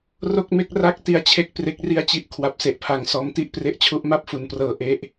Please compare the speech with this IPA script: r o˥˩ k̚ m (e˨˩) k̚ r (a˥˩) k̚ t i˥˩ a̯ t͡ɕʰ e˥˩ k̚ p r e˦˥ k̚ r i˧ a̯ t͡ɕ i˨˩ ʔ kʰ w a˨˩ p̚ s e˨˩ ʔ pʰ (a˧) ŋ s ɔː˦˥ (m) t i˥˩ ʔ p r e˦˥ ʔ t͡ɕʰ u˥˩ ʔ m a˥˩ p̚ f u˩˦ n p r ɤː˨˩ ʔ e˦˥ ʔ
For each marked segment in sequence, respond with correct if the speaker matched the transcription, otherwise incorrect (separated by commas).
incorrect, correct, incorrect, correct